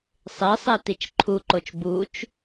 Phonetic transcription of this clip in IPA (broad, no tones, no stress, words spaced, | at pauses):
sˤesˤe tit͡ʃǃʰuǃot͡ʃ but͡ʃ